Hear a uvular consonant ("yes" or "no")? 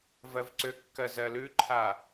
no